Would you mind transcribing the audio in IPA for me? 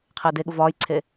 qʰ ɪː d e ɠ u v ɒː j ǀʰ e

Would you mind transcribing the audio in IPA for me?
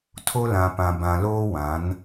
tʰ o˦ l ã˨ p ã˨ b ã˨ l oː˦ w ã˨˦ n

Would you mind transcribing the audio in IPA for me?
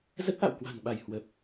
z ə˦˥ t̚ ʔ a̰˧˨ w k w a̤˨˩ n ɓ a˧˩ j h w ə˨˩ p̚

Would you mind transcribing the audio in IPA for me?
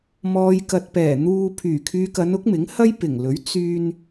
m ɔː˨ j k ɐ˨ t̚ p ɛː˨˩ n̪ uː˧ pʰ yː˨˩ kʰ yː˨ k ɐ˨˧ n ʊ˨˥ k̚ m ɪ˨˥ ŋ h ɐ˥ j p ɪ˨˩ ŋ l ɵ˨˥ ɥ t͡s yː˧ n

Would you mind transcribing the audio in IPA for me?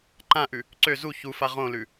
ǃ ã ʔ ʉ | ǀ ø z u ç u f a ʁ õ l ʉ

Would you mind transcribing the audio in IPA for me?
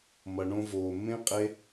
m ʌ˨ ɳ õ˧ v oː˨ mː ẽ˦ qʼ e˦

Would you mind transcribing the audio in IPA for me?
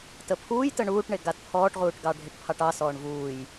t ə pʰ uː j t ə ɳ uː ʈ ɳ e ɡ a t pʰ ɔː ʈ ʁ uː ʈ ɡ ɑ ɖʱ e ʈ pʰ ɑ ʈ ɑ s ɔː ɳ v uː j

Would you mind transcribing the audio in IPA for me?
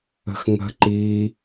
ə̤ x ŋ ə̤ ǃ i

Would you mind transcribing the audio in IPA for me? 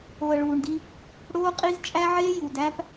o˨ ə̯ ɭ uː˨ ɳ d i˦ | ɽ oː˦ qʼ i˦ z t͡ʃʼ æ˦ ʕ eː˦ j u˨ d æ˦ p

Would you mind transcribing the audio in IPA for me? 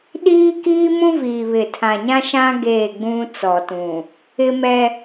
ɗ iː˦ k iː˦ m ũ˦ v iː˨ β ɪ˨ tʰ ã˨ ɲ ã˦ ʃ ã˦ ɡ eː˦˨ ɡ͡b ũ˦ t͡s ɔ˨ t ũ˨ | ɪ˦ m ɛ˦

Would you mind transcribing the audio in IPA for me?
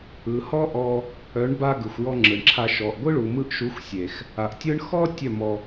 ɯ˨ h ɔ˦ ʔ ɔ˧ | œ˨˦ ɳ b a˧ ɡ ɯ˨ xʷ j ɔ˧ ŋ͡ǁ ɯ˨ ɳ ǁʰ a˧ ʃ ɔ˨ ʔ ɡʷ ɯ˦ ɭ u˨ m ɯ˧ ʔ ʃ u˨˦ xʷ sʲ e˨ x | a˨ ʔ tʲ ɯ˦ ɳ x ɔ˦ tʲ œ˦˨ m ɔ˧

